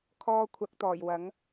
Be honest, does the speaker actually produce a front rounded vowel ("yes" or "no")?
no